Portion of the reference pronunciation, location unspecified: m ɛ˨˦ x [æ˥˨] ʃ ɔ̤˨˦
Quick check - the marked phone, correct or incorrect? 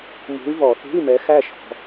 correct